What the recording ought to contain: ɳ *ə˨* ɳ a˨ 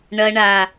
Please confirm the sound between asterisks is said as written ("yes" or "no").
no